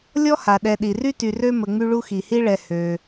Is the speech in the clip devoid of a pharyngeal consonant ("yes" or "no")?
yes